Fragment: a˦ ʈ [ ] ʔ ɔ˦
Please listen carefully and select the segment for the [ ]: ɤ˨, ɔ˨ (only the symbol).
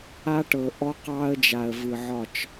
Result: ɤ˨